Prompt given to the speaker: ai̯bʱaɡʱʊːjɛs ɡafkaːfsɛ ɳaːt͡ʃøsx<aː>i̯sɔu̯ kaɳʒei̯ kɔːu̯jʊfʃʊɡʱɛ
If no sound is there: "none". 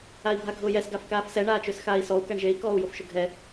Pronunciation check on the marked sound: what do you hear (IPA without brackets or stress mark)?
aː